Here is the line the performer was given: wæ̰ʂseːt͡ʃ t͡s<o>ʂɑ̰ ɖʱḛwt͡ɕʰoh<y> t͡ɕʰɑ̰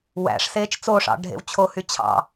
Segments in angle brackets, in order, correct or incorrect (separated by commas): correct, correct